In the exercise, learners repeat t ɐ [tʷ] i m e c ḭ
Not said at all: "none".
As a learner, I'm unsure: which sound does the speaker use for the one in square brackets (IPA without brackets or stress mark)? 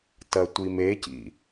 tʷ